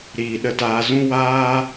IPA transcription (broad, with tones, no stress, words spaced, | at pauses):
ɾiː˧ɗə˦taː˦ zũ˦waː˦